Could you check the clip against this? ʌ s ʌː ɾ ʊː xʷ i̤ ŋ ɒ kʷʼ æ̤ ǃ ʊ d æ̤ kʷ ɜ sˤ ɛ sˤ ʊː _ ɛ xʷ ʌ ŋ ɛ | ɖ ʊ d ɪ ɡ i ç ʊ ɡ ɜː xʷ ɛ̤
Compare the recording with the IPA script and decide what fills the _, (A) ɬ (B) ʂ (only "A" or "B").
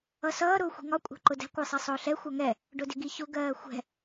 A